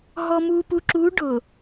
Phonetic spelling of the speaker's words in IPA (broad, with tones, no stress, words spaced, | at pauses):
ɦɔ˨mu˨pu˨ǁuː˨˦ ɖʊ˨